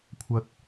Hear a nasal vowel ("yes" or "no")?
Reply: no